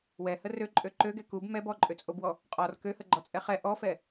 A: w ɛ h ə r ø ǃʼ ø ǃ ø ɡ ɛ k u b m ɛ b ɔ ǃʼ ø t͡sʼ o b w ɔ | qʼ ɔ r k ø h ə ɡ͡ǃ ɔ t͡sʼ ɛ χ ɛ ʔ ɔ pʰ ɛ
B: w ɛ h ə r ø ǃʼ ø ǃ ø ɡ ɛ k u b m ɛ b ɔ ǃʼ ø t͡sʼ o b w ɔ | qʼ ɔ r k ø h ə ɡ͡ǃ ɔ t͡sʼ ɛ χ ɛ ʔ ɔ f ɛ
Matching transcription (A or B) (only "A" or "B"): B